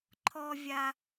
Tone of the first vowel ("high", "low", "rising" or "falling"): high